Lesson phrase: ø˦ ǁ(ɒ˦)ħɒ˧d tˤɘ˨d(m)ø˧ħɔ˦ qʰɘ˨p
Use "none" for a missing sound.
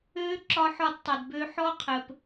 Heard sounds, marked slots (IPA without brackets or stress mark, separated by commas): ɒ˧, b